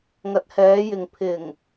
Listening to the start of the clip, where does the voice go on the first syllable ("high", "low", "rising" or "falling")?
rising